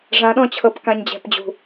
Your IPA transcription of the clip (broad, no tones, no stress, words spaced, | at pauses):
ʐãɗɔ̃t͡ɕʰɤp kãɲd͡ʑɛ̤pd͡ʑṳ